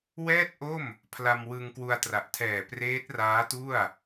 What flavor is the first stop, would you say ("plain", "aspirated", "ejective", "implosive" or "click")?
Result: plain